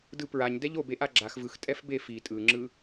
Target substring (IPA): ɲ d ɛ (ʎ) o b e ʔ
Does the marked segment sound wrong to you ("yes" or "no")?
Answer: no